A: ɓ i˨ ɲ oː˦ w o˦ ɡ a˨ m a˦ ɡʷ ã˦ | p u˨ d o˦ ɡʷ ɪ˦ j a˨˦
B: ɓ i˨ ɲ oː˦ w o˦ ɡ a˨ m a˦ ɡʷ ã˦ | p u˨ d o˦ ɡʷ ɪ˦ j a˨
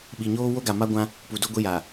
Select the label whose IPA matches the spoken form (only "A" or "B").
B